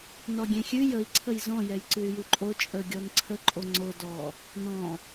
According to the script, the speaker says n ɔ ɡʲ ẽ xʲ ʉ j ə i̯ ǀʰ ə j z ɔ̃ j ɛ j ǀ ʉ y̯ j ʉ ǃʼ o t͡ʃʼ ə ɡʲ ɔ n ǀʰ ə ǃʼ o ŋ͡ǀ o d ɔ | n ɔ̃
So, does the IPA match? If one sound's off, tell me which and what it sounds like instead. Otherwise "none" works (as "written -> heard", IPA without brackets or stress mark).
none